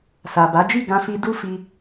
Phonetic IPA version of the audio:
s a˨ b a˨˦ d͡ʒ i˦˨ ɡ ã˧ f i˧ d u˦ f i˧

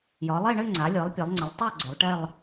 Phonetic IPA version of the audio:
j ɒ˩˧ lˠ e˥˧ ɳ ɘ˥˧ ŋ͡ǀ a˩˧ lʲ ɤ˩˧ lˠ pʲ ɛ˩˧ lˠ ŋ͡ǀ ə˩˧ lˠ tˤ a˥˧ ɡ͡ǀ ɘ˩˧ lˠ ʈ ɛ˥˧ lˠ

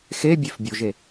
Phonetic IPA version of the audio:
x e bʲ e f bʲ o ʒ e

